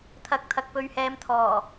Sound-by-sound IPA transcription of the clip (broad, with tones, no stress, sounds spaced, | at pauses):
t̪ʰ ɐ˨˥ k̚ t̪ʰ ɐ˨ k̚ p ɵ˨˧ ɥ h ɛː˨˧ m t̪ʰ ɔː˨˩